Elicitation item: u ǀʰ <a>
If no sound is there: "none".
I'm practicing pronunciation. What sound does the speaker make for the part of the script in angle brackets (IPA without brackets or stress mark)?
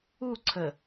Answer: ə